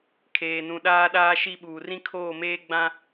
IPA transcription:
kʰ eː˨ n ũ˨ ɗ aː˦ ɗ aː˦ ʃ i˦ ɓ uː˨ r ĩ˦ kʰ oː˦˨ m eː˦ ɡ͡b ã˦

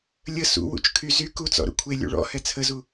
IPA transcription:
lʲ ə s ṵ w ṵ t͡ʃ kʰ y z y k u t͡s ɔ̰ ɾ ṵ kʷʰ e lʲ ṵ ɭ ɔ̰ h ɛ t͡sʰ ə z u

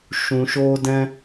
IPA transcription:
ʃ ũ˧ ʃ oː˦ d ɛ̃˦

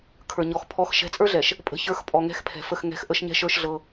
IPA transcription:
kʰ ə˞˨ ɲ ɔ˨ x pʰ ɔ˨˦ x ʃ ɛ̤˨˦ t͡sʼ ə˞˦ ɮ ɛ˨ ʃ | pʼ ə̤˦ ç ə˞˦ x pʼ ɔ˨ ŋ ɛ̤˦ x pʰ ɛ̤˨ f ə˦˨ x ŋ ɛ̤˦˨ x ʔ ə˦ ʃ ɲ ɛ̤˦ ʃ ə˞˦ ʃ ɮ ɤ˦

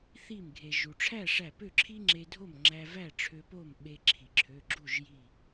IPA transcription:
θ i˧˩ m ɡʱ e˩ ʒ u˩ ʈ͡ʂʰ æ˥˨ ʂ æ˧˩ p ø˥˨ ǁʰ i˥ ŋ͡ǁ e˧ dʱ o˥˨ m ŋ͡ǁ æ˧ v æ˥˨ ʈ͡ʂʰ ø˧ p o˥˨ m ɓ e˧ ǁʰ i˩ ǁʰ ø˩˧˩ ɡ͡ǁ u˥˨ ʒ j i˧˩

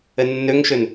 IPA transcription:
ə nː ɵ ŋ ʃ ɵ n

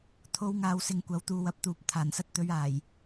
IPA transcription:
t̪ʰ o˨˧ w ŋ aː˨ w s ɪ˨ ŋ kʷ ɐ˨˥ w t̪ uː˨ w ɐ˨ p̚ t̪ uː˨ p̚ t̪ʰ aː˨˩ n s ɐ˧ t̚ t̪ ɵ˨˧ ɥ aː˨˩ j

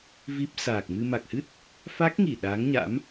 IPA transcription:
v i˦˥ p̚ s aː˨˩ k̚ m ɨ˧ m a˨˩ k̚ h ɨ˦˥ t̚ | f a˦˥ k̚ ŋ i˧˩ ɗ aː˨˦ ŋ ɲ a̰˧˥ m

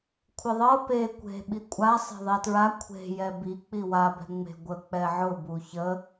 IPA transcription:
kʷʰ ɪ ðˤ ɤ p e kʷ e̤ ɓ i kʷʼ a sˤ e̤ ðˤ ɛ t ɹ a kʷʰ e̤ j ɛ b i k͡p i w a b ɛ̤ ŋ͡m e̤ ɡʷ ə k͡p ɛ ʕ ʊ b u ç ə

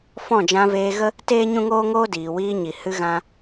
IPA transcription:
f ɔ̃˦˨ d͡ʒ ã˧ v eː˧ ɣ ə˦ | t eː˦ ɲ ũ˦ ŋ oː˦ ŋ oː˦ d iː˨ w iː˧ ɲ i˨ h ɨ˧ ɣ ã˧

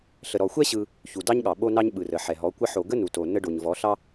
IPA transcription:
ɬ ə˨ ɾ ɔ˨ xʷ ɛ˦ ɕ ɯ˧ | ç u˨ d ɑ˦ ɲ ɠ ɑ˨ ɓ o˦ n ɑ˦ ɲ ɓ ɯ˨ r ə˨ ħ ɛ˨ ɦ ɔ˨˦ kʷ ə˧ ħ o˨ ɡ ə˦ n u˨ t o˨ n ə˧ ɖ o˨ ɲ v ɔ˨˦ ɬ ɑ˦

